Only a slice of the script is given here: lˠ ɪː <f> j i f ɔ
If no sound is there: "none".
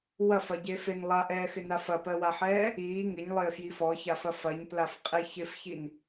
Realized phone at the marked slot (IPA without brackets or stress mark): f